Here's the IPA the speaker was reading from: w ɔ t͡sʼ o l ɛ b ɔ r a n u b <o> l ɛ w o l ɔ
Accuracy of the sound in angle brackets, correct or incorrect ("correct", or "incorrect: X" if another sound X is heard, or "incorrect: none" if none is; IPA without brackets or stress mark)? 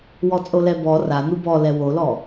incorrect: ɔ